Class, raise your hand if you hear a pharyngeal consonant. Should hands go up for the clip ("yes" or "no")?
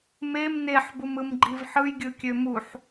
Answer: yes